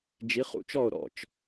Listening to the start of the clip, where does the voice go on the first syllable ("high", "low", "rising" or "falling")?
rising